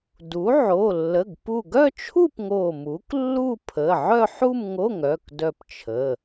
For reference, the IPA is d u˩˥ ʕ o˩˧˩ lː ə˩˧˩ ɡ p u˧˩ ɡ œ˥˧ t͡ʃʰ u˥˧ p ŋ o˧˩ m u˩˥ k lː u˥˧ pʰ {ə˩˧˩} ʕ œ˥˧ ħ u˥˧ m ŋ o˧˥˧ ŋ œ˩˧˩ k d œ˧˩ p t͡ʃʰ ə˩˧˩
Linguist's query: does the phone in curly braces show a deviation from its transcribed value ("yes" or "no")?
no